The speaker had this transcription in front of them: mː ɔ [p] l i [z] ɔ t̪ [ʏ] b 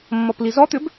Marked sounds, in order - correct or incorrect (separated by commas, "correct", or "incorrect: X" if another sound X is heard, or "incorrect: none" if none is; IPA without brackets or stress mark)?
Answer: correct, correct, correct